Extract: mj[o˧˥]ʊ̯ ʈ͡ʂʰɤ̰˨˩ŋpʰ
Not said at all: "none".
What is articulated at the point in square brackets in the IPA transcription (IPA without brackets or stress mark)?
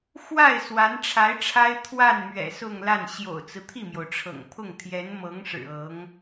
o˩